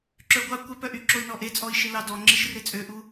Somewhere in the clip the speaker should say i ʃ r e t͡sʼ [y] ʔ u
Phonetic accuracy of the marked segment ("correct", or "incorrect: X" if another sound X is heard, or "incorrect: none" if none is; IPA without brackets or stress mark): incorrect: ø